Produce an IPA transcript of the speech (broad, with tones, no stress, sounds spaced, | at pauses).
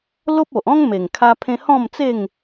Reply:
l o˦ p̚ o˨ ʔ ɔ̃˦ ŋ m e˨˩ ŋ kʰ a˧ pʰ ẽ˧ h ɔ̃˥˧ m t͡s e˥˧ ŋ